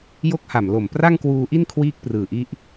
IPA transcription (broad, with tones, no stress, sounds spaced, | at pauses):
j o˦˥ k̚ h a˨˩ m l o˨˩ m p r a˥˩ ŋ k w uː˧ ʔ i˥˩ n kʰ w iː˦˥ k̚ p r ɯː˨˩ ʔ i˦˥ ʔ